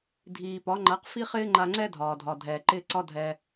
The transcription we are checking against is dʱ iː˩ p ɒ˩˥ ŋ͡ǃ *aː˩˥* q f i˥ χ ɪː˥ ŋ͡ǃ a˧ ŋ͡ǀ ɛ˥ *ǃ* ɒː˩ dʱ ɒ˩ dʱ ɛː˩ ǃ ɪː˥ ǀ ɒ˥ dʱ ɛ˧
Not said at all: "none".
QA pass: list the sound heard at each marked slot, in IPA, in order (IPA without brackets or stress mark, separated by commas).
a˩˥, dʱ